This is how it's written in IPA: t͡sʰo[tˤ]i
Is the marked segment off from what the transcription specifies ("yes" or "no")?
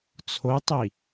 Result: no